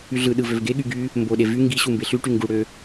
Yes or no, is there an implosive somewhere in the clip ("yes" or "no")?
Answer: yes